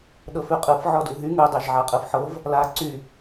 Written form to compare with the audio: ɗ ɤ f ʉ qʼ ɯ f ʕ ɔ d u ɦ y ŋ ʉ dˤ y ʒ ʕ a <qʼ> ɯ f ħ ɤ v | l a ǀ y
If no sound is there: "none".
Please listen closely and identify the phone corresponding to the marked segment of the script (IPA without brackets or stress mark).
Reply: qʼ